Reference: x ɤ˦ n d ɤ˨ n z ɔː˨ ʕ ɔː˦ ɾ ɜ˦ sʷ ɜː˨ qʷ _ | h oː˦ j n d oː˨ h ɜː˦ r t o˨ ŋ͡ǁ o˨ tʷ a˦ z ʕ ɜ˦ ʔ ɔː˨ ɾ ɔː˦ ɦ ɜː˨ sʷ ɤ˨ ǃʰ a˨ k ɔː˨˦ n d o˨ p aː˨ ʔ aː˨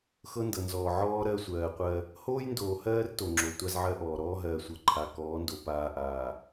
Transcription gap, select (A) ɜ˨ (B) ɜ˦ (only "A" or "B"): B